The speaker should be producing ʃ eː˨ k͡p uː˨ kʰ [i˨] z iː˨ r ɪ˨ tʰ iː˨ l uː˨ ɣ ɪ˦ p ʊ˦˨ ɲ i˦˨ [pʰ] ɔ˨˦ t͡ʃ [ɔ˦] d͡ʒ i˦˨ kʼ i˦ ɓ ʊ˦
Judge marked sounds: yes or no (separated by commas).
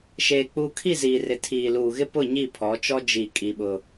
no, yes, yes